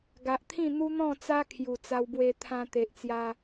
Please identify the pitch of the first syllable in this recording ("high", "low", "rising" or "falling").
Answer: low